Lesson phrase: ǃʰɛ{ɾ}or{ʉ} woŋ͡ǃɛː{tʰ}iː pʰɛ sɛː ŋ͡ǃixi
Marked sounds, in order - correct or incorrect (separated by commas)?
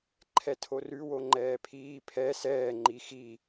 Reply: incorrect, correct, incorrect